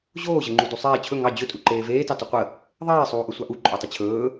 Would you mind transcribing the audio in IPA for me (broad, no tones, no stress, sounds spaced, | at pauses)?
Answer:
ʑ oː ʑ ə ŋ͡ǃ u d u sˤ eː t͡ɕʰ ɵ ŋ ɑ d͡ʑ ɵ tʼ u ǃ eː v eː t ɑ t u qʷ ə | ðˤ eː sˤ uː ʔ ɵ sʷ ɑ ʔ u ǃʼ o tˤ ə t͡ɕʰ ɵː